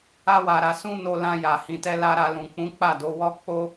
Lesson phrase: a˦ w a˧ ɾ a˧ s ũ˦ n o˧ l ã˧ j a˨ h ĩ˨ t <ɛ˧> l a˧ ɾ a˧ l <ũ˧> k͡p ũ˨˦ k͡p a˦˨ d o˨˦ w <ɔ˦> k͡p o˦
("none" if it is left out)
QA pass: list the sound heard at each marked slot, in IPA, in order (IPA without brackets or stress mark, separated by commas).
ɛ˧, ũ˨, ɔ˦